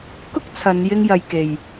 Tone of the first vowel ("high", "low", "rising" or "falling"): high